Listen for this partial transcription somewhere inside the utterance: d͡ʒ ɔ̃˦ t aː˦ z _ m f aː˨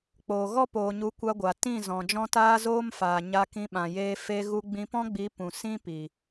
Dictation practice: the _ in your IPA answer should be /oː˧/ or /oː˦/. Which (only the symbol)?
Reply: oː˦